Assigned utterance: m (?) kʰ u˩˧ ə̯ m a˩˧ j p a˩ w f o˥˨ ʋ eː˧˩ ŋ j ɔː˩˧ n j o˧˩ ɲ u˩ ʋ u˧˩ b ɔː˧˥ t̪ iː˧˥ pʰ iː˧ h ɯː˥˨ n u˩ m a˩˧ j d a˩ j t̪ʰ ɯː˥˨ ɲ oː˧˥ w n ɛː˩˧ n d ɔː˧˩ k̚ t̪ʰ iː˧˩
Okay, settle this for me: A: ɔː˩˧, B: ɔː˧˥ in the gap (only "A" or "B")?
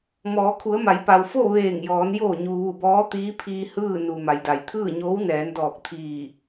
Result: A